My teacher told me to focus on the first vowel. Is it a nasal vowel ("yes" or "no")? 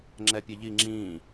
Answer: no